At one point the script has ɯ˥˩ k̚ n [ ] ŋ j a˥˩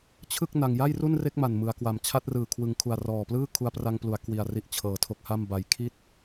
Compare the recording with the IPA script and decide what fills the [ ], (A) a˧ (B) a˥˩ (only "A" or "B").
A